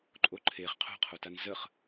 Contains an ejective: yes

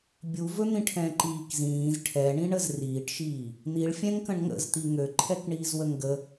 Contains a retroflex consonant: yes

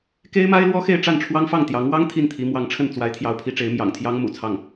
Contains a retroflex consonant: yes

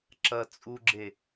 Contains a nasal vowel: no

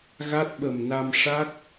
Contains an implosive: yes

